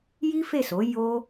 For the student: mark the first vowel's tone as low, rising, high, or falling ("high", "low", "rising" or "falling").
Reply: high